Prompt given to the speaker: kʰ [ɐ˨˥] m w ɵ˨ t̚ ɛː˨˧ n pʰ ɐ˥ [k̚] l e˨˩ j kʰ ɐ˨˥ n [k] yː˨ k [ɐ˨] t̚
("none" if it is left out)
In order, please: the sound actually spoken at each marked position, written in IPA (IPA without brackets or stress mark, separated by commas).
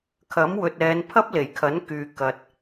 ɐ˨˥, p̚, k, ɐ˨